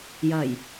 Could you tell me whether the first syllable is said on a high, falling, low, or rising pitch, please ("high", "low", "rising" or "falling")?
low